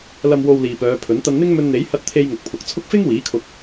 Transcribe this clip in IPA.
lɐ˨mwo˨w liː˨pœː˨˧pʰɵ˨˥n t̪ɐ˧nn̪ɪ˥ŋ mɵ˧nn̪e˨˥j hɐ˧t̚t̪ʰe˧j ŋʊ˨k̚pʰʊ˨k̚t͡sʰʊ˥k̚ fɪ˥ŋwiː˨˥kʰʊ˧k̚

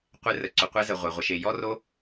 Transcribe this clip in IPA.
qʷe˧rə˨ ǀʏ˨qʷɛ˧ zə˨ʁʷe˨ʁʷə˨ʃe˨ jɔ˦ro˦

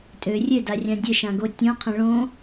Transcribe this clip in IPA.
tʼø rʲødarʲã dʲəʃãɡo tʲõqʰə̃ ɭõ

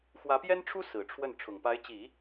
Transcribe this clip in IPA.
xwä˧˥pjɛ˥nʈ͡ʂʰu˥ sɹ̩˨˩ʈ͡ʂʰwə˥˩n ʈ͡ʂʰʊ˨˩ŋpa˧˥ɪ̯t͡ɕi˨˩˦

